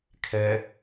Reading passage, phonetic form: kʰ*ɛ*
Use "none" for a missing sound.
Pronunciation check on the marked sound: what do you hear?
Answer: ɛ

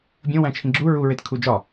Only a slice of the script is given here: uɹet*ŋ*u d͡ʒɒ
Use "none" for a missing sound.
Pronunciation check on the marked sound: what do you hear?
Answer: kʰ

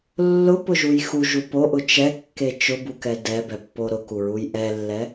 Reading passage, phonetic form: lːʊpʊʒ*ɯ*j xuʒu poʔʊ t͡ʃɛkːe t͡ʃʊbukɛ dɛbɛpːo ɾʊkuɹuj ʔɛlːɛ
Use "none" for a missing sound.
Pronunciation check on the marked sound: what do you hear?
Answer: u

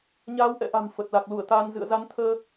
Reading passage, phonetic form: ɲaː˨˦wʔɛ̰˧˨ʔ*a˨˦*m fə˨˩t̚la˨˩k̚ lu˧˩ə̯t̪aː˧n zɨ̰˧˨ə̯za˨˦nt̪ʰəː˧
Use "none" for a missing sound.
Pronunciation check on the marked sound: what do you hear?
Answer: a̤˨˩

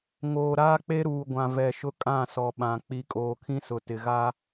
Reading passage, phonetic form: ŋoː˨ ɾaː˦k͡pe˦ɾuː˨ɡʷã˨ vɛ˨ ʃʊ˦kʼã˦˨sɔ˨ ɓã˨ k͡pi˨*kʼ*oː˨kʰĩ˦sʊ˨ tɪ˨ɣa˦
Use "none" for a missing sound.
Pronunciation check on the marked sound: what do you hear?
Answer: kʼ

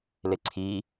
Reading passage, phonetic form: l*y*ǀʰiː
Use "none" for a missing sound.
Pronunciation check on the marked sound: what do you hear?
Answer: e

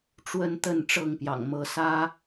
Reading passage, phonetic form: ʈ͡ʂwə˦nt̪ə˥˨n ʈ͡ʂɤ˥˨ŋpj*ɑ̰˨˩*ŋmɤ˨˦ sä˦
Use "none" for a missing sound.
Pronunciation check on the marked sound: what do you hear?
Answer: ɑ̰˨˩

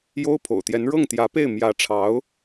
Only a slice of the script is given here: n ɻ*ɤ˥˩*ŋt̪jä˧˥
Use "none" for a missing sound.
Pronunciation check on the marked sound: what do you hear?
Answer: ɤ˥˩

